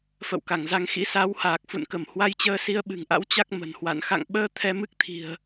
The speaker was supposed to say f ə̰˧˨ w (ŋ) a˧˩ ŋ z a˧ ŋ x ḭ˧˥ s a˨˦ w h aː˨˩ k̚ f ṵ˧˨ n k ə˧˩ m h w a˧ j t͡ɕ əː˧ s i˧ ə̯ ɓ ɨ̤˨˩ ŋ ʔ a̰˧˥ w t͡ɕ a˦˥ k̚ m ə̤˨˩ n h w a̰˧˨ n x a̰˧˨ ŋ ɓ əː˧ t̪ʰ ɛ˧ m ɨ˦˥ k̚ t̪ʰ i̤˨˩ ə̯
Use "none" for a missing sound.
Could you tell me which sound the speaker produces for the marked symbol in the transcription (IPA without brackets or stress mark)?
k